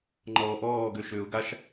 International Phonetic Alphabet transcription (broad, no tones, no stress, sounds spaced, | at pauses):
ŋ͡ǃ ɔː ʔ ɔː ɡ ø ʃ ø ʊ̯ ɡ a ʃ